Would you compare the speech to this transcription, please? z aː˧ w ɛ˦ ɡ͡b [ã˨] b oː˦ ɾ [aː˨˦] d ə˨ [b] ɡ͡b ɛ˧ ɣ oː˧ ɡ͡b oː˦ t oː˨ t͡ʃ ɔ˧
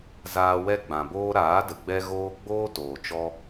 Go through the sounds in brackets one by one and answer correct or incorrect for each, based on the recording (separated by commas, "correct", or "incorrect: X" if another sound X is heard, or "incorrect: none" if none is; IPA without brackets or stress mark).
correct, correct, incorrect: none